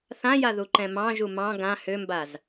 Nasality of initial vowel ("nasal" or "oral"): nasal